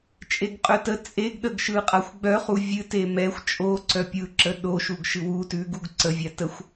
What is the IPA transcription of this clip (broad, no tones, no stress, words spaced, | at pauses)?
t͡ʃʼeɡqʼœtə t͡sʼeɡɗəɡ ʃɯqʼaxʷɡ͡bœχu vʲɨte mɛxʷ t͡ʃʼoǀœ pʲɯǁə ɗoʃuɡ ʃɨwu tʉɡuɡ ǀəvʲa təxʷ